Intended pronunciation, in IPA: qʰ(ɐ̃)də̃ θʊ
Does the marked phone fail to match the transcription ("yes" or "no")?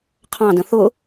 yes